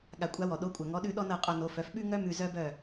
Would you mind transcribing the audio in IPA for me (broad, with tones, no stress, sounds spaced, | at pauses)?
ɠ a˩ kʷʼ a˩˥ w ɔ˩ ɗ o˩˥ kʷʼ œ˩ ŋ ɔ˩˥ ɗ ʉ˧ ɗ ɔ˥ n ɤ˥˩ qʼ o˧ n o˩˥ f œ˩˥ f ɓ ʉ˥ ŋ œ˥ m ʉ˧ z œ˥ b œ˥˩